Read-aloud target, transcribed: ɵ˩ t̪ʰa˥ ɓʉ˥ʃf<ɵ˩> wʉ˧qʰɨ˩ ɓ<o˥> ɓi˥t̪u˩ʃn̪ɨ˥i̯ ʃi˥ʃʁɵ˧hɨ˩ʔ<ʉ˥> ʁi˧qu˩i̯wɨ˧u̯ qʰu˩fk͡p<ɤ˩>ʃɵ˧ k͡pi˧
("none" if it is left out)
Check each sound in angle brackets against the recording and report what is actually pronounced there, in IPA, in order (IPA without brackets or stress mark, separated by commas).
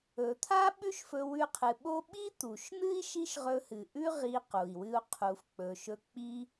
ɵ˧, o˥, ʉ˥, ɵ˩